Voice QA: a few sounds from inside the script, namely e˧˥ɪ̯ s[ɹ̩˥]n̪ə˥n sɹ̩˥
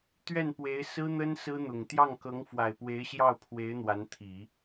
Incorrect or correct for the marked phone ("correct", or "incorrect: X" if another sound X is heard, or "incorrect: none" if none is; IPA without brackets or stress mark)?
correct